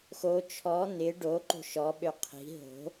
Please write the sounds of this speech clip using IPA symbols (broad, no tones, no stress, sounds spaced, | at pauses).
x o t͡ʃʰ ɔ n̪ ɪ ɖ o ǃ o̤ ʃ ɔ ɓ ø qʰ i̤ ɦ o̤